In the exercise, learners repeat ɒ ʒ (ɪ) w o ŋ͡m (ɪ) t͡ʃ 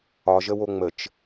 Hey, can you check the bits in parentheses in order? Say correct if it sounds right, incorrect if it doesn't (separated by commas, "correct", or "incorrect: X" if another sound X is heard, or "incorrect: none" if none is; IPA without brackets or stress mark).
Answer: incorrect: ə, incorrect: ə